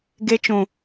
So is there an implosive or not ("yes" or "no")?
no